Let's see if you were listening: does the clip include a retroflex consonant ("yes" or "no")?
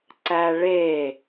yes